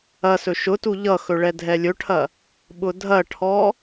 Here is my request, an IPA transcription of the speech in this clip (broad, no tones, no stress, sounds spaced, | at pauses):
ɐ s ɵ ʃ ʊ t u ʎ ʌ x ɵ ɭ ɛ dʱ ɛ lʲ ɵ ʈʰ ɐ | ɓ ʊ dʱ ɐ ʈʰ ɔ